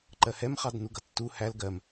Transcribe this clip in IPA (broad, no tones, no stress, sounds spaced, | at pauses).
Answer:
ǃ ɜ h ɛ m χ ɑ d n u ɡ ʌ tː u h æ l ɡ ɜ m